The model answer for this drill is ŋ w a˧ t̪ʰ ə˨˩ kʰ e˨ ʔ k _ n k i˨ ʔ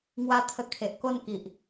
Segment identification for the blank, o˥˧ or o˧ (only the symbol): o˥˧